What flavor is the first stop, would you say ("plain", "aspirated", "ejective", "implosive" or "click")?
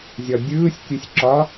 plain